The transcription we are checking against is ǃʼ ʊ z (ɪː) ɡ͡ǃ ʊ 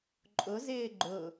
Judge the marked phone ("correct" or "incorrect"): correct